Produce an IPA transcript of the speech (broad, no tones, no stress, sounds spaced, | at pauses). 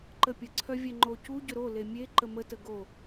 ǃ ə pʲ ə ǀʰ œ vʲ ɛ ŋ͡ǃ o c u ɟ ʏ ɾ o l e mʲ e ǃ ə m ə t ə ɡ o